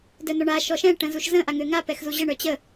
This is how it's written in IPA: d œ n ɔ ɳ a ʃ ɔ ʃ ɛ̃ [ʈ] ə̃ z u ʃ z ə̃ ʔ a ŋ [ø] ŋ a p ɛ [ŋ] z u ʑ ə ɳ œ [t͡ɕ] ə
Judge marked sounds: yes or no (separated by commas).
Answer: yes, yes, no, yes